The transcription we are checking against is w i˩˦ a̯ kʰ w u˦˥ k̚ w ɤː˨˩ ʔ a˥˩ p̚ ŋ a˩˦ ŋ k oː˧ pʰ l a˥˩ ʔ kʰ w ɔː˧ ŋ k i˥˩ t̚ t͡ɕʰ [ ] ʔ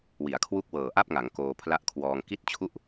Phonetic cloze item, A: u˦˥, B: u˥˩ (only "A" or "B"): B